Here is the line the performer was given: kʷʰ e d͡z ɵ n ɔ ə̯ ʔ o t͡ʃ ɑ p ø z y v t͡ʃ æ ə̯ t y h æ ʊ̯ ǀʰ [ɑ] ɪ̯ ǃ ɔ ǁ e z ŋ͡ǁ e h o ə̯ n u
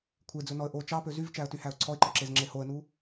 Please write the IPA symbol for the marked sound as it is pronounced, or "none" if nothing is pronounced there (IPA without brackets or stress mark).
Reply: ɔ